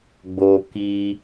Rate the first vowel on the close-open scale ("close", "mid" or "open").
mid